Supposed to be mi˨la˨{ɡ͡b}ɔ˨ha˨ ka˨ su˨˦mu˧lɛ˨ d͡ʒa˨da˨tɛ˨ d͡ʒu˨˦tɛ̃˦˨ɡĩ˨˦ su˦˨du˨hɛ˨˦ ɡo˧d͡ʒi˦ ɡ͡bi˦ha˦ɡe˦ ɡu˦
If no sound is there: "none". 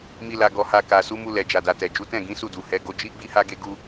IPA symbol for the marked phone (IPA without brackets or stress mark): ɡ